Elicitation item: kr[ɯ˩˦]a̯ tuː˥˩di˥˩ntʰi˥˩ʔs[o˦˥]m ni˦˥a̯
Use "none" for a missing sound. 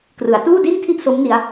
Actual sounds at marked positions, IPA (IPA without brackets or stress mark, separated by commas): ɯ˩˦, o˦˥